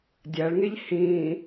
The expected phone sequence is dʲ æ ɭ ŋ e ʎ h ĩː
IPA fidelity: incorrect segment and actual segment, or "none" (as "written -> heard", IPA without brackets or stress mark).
none